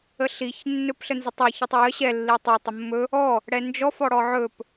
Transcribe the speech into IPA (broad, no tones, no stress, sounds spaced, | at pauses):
ə ɬ i ç nː ɵ p ɬ ə n z ə tˤ e ç i tˤ e j ə ɕ ɛ lː i tˤ ɛ tˤ ə mː ɵ | ɔ | ɽ ɛ n d͡ʒ ɔ f ɔ ɽ ɔ ʕ ɵ p